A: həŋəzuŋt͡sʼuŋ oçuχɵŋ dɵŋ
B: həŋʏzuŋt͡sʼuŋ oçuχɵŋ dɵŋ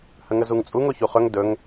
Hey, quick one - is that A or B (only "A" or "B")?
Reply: A